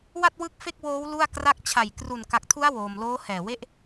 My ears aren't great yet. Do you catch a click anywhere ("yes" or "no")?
no